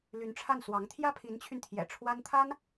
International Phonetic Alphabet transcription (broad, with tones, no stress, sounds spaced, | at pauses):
l y˧˥ n ʈ͡ʂʰ a˥˩ n s w ɑ˧˥ ŋ t̪ʰ j ä˥ pʰ i˧˥ n t͡ɕʰ y˧ n t̪ʰ j ɛ̰˨˩ ʈ͡ʂʰ w a˥ n t̪ʰ a˥ n